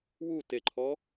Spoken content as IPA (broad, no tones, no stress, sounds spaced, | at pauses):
w u t e ǃʰ ɔ